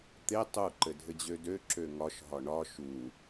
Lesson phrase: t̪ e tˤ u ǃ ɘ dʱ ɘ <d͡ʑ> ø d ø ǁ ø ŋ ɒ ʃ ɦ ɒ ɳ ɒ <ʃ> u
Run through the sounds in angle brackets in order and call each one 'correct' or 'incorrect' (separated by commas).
correct, correct